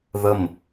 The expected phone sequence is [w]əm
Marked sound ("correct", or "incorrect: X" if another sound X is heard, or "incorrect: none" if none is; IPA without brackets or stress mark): incorrect: ð